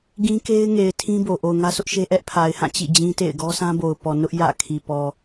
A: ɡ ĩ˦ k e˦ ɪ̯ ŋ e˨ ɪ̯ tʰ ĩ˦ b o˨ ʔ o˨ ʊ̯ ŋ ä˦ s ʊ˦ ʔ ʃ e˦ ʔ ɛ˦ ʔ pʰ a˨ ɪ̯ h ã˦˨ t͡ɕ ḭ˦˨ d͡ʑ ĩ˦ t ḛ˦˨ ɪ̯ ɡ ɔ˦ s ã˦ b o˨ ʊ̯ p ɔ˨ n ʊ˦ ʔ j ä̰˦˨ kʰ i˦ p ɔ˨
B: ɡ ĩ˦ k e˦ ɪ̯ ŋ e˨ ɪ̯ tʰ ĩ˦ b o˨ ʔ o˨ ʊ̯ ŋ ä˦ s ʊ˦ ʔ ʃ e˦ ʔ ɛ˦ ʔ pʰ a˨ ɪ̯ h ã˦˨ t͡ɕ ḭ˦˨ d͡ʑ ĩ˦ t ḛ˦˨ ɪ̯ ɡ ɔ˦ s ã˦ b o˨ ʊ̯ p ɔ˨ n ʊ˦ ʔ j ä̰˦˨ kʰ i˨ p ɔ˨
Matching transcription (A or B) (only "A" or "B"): B